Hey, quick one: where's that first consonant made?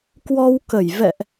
velum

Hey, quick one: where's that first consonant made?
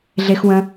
tongue tip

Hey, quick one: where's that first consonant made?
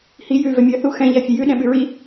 throat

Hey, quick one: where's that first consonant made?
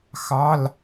velum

